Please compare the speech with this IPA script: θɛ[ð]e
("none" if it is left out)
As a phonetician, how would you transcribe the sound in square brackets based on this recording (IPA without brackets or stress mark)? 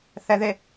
ð